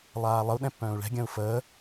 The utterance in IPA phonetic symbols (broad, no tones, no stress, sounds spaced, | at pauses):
lˠ aː lˠ ə u̯ ɗ ɛ̃ pː œ̃ː u̯ ɭ ɛ̤ ɡʲ ə̃ː u̯ f əː